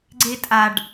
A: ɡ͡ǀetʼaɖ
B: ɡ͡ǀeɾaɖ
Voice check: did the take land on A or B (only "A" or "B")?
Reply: A